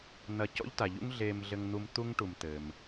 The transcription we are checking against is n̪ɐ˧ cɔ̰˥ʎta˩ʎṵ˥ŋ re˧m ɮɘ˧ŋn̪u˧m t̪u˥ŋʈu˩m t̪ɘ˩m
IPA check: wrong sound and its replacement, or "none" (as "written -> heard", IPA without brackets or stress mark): r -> ɮ